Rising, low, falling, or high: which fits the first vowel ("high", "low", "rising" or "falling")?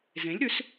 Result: rising